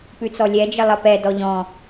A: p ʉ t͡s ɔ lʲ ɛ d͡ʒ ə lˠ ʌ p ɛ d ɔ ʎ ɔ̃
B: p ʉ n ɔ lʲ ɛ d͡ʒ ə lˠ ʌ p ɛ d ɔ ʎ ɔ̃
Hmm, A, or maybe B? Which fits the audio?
A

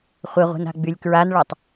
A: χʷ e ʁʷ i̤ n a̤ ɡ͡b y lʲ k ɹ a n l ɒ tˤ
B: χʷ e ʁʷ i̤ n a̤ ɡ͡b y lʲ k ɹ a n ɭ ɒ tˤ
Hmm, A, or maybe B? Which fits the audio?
B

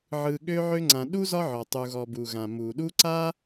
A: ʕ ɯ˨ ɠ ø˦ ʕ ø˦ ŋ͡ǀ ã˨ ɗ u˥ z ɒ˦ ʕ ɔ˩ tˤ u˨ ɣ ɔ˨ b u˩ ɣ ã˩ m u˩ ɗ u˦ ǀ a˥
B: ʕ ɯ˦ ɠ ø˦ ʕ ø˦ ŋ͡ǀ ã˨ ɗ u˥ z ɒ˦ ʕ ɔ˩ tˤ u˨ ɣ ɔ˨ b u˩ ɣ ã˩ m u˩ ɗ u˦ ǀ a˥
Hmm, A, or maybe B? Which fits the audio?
A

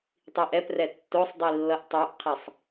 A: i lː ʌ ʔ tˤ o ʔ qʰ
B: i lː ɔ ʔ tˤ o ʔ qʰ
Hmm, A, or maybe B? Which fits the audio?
A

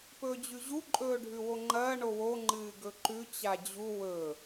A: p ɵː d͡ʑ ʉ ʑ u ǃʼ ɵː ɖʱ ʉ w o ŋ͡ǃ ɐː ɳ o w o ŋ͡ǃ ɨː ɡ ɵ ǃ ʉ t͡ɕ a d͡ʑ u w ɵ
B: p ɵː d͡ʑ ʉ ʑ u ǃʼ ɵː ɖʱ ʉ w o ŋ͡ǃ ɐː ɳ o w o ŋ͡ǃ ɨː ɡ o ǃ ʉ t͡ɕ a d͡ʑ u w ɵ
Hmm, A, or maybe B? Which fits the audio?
A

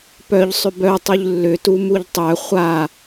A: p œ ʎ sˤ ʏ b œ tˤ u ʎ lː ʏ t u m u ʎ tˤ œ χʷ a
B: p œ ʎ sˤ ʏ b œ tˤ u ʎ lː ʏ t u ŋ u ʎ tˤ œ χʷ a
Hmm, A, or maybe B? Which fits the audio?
A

